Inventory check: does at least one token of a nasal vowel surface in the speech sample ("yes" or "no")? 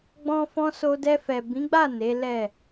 yes